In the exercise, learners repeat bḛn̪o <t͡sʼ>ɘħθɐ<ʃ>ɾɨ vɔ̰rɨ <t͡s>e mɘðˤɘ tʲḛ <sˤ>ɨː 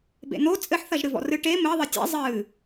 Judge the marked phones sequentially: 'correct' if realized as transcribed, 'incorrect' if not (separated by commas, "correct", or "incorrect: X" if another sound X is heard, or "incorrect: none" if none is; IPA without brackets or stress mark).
correct, incorrect: ʒ, incorrect: ʈ, incorrect: zˤ